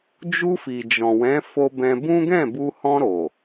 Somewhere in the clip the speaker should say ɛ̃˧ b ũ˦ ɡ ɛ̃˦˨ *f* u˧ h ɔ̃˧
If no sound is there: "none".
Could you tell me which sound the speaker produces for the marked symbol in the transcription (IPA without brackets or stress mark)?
b